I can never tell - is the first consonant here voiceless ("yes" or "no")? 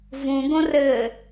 no